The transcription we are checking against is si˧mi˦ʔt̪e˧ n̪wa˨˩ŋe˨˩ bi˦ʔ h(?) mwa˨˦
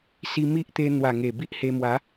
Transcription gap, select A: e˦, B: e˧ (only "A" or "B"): B